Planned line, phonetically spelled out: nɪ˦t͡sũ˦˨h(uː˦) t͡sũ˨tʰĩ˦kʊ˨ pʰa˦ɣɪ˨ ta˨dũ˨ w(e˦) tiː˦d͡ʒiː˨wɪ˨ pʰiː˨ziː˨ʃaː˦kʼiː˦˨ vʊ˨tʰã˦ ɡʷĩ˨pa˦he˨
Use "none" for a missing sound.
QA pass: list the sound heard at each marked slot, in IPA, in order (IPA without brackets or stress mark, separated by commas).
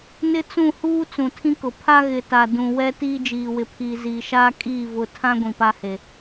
uː˦, ɛ˦